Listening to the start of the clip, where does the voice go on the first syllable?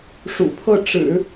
low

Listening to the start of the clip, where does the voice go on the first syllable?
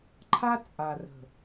high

